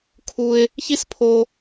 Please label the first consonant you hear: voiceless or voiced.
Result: voiceless